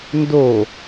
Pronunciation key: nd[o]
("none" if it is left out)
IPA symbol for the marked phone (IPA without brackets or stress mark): o